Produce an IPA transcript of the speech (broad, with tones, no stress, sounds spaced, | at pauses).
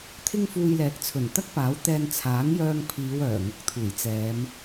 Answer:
t̪ʰ ɪ˥ ŋ f uː˧ j l ɛː˨ k̚ t͡sʰ ɵ˨˩ n t̪ ɐ˥ k̚ p aː˨˥ w t̪ ɛː˧ n t͡sʰ aː˨˥ ŋ j œː˧ ŋ pʰ iː˨˧ w œː˨˩ ŋ ʊ˨˥ k̚ t̪ʰ uː˨˩ j t͡s ɛː˨˧ m